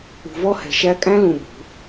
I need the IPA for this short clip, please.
ṳ˨ v ɔ˦ h ɛ̤˨ ʃ æ˦ kʼ æ̃˦ l ũ˨ b ṳ˨˦

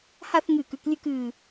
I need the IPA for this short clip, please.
h a˥˧ θ ŋ ɨː˧˩ k ʉ˧ k lʲ ʉ˥˧ k ɨː˧˩

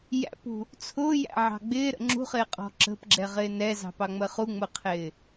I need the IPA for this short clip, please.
j æ̰ p ṳ | t͡sʰ ʊː j æ̰ ʕ ɑ̤ ɡ͡b ɪː ɾ ə̰ ŋ͡ǁ ṳ χ ɪː qʼ ɔ̤ ǁ ə̤ p ɡ͡ǁ ɛ ʁ ɪː n ɛ z ɑ̤ p ɑ ŋ͡m ə χ u ŋ͡m ʊ qʰ ɪː

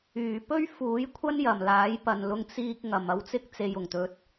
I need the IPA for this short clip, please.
yː˨˩ p ɵ˥ ɥ f uː˨˥ j kʷʰ ɐ˥ n j ɐ˨˩ m l aː˨˥ j p ɐ˨ n l ʊ˧ ŋ t͡s iː˧ k̚ ŋ ɐ˨ m ɐ˧ w t͡s ɪ˥ k̚ t͡s e˨ j ʊ˨˩ ŋ t̪ ɵ˨ t̚

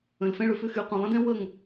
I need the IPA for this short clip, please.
ə̃˨ l f ɛ̃˧ ɭ ʏ˨ f ʏ˦˨ x y˨ qʷ ɐ̃˨ lˠ ə̃˦ d ɛ̃˦ w ə˦˨ ŋ

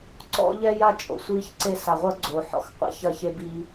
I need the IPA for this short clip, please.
ǀ ɔ̰˦ ʎ ɛ˦ j a˦ t͡ʃʼ o̰˨ sʷ i˦ ç ǀ e˦ s a˨ ʁʷ ɐ˦ ɡ͡ǀ o˨ ħ ɔ̰˨ x qʷ a̰˦ ç ɐ˦˨ ç e˦ b i˦

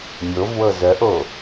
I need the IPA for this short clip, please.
mʲ o v w ɤ z œ ʔ o

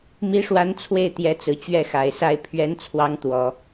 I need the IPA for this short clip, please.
m i˧˥ ʂ w a˧˥ n t͡sʰ w e˥˩ ɪ̯ t̪ j ɛ˧˥ t͡s ɹ̩˨˩ t͡ɕ ɥ ɛ˥˩ x a˨˩ ɪ̯ s a˥˩ ɪ̯ pʰ ɥ ɛ˧˥ n t͡sʰ w ɑ˧˥ ŋ t̪ w ɔ˨˩˦

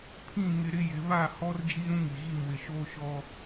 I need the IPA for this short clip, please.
pʰ ĩ˦˨ ŋ ɪ˦ ɾ ɪ˦ j ɪ˨˦ β a˦˨ h ɔ˦ r d͡ʒ i˦ ɾ ũ˦ ŋ i˨ ɣ i˦˨ m w ɪ˨ ʃ oː˦ ʃ ɔ˦

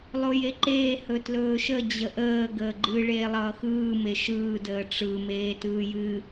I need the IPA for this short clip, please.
lˠ o j e ǃ eː h ɵ t l ɵː ʃ ə d͡ʑ ə ʔ əː ɡ əː ɡ͡ǃ ɨ ɭ eː lˠ ʌː x ɯː m e ʃ ɯː d əː ʈ͡ʂ ɯ m eː t ɯː j ɨ

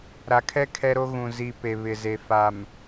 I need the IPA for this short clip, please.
ɾ a˨ kʰ ɛ˦ kʰ ɛ˦ ɾ o˦ ɣ ũ˨ z i˨ p e˨ β ɪ˨ z e˨ f a˨ m

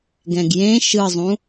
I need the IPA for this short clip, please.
ɡ ɛ̃ ɡ j ẽ ʃ ɯ zˤ ũ

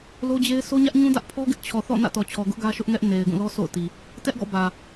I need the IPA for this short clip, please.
l o˦ d͡ʑ e˦ ɪ̯ sʰ o˦ ɲ ä˦ ʔ ɲ ũ˦ d ä˦ ʔ pʰ ɔ˦ ɡ ɪ˦ ʔ t͡ɕʰ ɔ˨ θ ɔ̰˦˨ n ä̰˦˨ t ɔ˨ t͡ɕʰ ɔ˨ ɡ ʊ˦ ʔ ɡ ä˦ ʃ ʊ˦ ʔ ŋ ɛ˦ ʔ n e˨ ɪ̯ ɡ ũ˦˨ l ɔ˦ sʰ o̰˦˨ ʊ̯ t i˨ | t ɛ˦ ʔ ɡ ɔ̰˦˨ b ä˨

